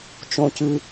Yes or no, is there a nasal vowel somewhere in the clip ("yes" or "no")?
yes